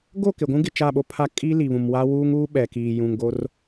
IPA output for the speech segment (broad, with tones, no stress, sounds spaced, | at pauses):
ɡ o˦˨ k ɪ˨ ɡʷ ũ˦ ɡ ɪ˨ t͡ʃ a˦˨ ɓ o˦ pʰ a˦ kʼ i˦ l i˨ β ũ˨ m w a˦ w uː˦ ŋ uː˦ ɓ ɛ˨ k iː˨ j ũ˨ ŋ ɡ o˦ r